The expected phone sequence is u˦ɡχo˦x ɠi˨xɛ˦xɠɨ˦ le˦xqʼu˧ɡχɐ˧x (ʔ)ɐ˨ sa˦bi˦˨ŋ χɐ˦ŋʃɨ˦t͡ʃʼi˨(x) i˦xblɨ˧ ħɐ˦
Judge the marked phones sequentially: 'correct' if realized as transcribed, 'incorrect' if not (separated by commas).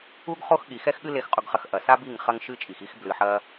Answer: correct, correct